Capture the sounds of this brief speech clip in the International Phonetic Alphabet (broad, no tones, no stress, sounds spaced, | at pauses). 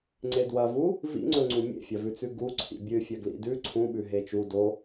ŋ͡ǀ e d w ɐ v u | v ḭ ŋ͡ǀ ɵ ŋ͡ǀ ũ mʲ ḛ fʲ ɐ v ʉ t͡s ʉ ɡ u ǀʰ ḭ bʲ ɨ fʲ ɐ ɡ l ḭ d ʉ ǀʰ ũ ɓ ʉ ɦ e t͡ʃ u d o